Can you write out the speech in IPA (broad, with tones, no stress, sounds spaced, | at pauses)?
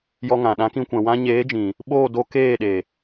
j ɔ˧ ŋ ã˨ ɗ ã˨˦ k ĩ˧ kʷ ɛ̃˨ w ã˦ ɲ eː˨˦ d͡ʒ ĩ˨ | ɓ oː˦˨ d o˧ k eː˦˨ ɗ e˨